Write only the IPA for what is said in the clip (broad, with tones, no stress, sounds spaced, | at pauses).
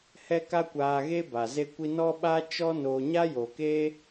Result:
h ɛ˦ k a˦ kʷ aː˧ ɣ e˦ b a˨ z e˦ kʷ i˦ n ɔ˦ ɓ a˦ t͡ʃ ɔ˦ n o˧ ɲ a˦ j o˨ k e˦